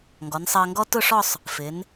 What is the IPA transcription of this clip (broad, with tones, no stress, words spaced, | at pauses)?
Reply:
ŋɡɔ˩˧nsˤɜ˧ŋɡɔ˥ tʊ˥˧ʂɔ˥˧sˤ | fɪ˩˧n